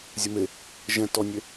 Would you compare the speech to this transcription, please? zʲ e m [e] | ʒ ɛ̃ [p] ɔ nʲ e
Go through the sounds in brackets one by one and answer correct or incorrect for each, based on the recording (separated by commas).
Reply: correct, incorrect